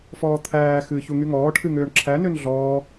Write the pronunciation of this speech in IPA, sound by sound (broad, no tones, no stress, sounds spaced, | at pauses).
f ɔː t̪ʰ æː x ɨː ç u ŋ y ŋ ɔː ʈʰ ɨ ŋ øː ɳ ǁʰ æ n ø n ɮ ɔː